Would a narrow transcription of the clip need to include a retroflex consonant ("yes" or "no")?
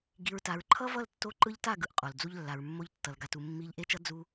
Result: no